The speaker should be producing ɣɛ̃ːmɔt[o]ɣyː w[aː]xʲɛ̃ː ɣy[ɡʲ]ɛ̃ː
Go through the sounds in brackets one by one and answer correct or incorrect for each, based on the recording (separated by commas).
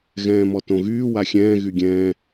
incorrect, incorrect, correct